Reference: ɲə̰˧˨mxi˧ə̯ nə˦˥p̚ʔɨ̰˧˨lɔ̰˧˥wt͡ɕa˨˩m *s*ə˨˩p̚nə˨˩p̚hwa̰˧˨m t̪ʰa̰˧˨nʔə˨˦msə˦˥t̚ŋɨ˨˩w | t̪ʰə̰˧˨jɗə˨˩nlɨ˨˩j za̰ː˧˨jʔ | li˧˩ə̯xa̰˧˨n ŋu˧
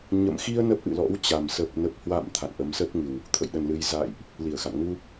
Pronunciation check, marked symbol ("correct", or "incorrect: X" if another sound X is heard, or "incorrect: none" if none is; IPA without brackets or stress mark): correct